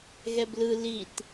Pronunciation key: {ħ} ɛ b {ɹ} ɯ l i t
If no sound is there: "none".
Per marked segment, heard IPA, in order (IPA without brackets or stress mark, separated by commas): ɣ, l